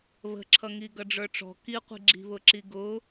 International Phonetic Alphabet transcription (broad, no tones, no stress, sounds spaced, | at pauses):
β ə̤ ǁʰ ʌ ŋ i ɡ ʌ ɖ͡ʐ ə˞ ʈ͡ʂ ɔ̤ k i qʷ i̤ ɡ͡ǁ i̤ β ʊ ǁ i ɡ ʊ